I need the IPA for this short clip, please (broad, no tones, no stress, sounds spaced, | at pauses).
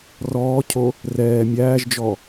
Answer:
r ɔː cʰ o | r ɛː mʲ æː ʒ d͡ʒ ɔ